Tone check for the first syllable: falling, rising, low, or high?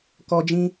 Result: high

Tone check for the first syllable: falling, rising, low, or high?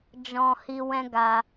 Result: low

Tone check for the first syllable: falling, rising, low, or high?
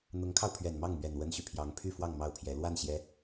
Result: rising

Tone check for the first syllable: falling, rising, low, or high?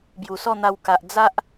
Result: low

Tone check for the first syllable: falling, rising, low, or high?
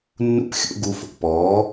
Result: high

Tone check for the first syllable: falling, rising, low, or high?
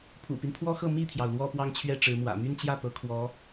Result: low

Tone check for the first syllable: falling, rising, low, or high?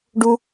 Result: high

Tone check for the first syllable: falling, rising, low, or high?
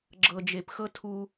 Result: low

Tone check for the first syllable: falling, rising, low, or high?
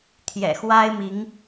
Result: low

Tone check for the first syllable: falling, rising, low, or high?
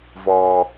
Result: high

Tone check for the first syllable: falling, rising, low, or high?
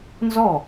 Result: falling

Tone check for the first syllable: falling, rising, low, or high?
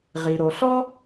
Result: low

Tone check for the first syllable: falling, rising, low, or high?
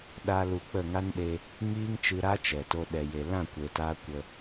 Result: high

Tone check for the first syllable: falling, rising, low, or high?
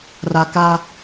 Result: low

